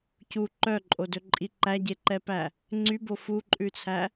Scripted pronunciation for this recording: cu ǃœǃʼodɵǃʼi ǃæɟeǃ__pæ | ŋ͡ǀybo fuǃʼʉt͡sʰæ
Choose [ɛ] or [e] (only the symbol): ɛ